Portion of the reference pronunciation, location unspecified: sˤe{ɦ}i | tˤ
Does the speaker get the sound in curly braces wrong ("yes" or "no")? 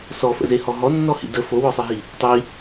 no